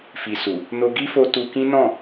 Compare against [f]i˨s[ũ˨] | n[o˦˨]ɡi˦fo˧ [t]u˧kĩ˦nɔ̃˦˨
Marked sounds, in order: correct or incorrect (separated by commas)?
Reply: correct, incorrect, incorrect, correct